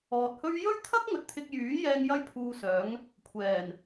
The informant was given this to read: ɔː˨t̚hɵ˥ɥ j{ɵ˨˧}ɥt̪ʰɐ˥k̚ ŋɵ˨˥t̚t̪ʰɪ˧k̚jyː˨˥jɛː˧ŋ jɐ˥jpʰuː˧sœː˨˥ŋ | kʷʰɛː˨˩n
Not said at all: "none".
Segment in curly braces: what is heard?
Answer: ɵ˥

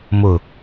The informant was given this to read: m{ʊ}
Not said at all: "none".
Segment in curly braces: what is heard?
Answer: ʊ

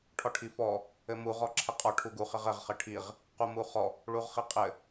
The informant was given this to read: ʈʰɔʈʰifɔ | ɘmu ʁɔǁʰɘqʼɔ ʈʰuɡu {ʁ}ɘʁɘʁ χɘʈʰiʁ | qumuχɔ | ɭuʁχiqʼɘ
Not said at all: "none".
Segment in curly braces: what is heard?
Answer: χ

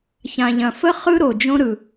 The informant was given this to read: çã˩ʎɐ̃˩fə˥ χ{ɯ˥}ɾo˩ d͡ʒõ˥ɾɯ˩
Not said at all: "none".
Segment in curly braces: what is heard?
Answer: ɯ˥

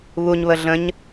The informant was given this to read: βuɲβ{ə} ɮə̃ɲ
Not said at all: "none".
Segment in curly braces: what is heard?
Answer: ə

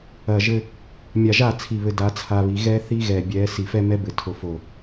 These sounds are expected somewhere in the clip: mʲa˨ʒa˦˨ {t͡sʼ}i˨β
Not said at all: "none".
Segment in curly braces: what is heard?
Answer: t͡sʰ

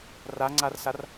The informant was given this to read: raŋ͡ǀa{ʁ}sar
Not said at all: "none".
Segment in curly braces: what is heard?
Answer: r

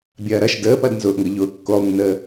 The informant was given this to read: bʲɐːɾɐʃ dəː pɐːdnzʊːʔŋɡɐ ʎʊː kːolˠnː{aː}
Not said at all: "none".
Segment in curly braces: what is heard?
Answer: əː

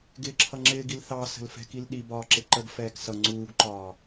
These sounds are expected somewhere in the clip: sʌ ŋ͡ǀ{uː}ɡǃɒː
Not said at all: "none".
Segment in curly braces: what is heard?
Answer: uː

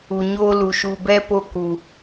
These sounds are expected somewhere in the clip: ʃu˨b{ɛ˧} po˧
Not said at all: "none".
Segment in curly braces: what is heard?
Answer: ɛ˧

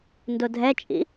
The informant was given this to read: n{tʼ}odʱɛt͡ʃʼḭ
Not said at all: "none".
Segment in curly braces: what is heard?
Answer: d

